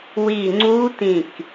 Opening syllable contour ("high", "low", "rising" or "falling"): falling